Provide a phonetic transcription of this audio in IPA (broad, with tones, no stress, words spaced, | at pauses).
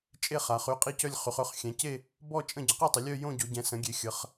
t͡ʃʼe˥˧χa˨˦χy˥˧ qʼi˥˧cœ˥˧lʲ χy˨˦χø˥˧χ xʲɛ̃˨˦ce˥˧ | bɔ˥˧ t͡ʃʼə̃˥˧ ɟə˨˦qi˥˧tˤə˨˦ lʲœ˥˧ jõ˥˧ɟo˨˦ ɟɛ̃˨˦ sə̃˨˦ɡʲe˨˦ xʲə˨˦χ